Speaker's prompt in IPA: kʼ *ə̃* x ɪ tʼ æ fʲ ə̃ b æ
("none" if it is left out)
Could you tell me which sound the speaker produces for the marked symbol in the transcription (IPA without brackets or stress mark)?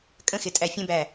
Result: ə̃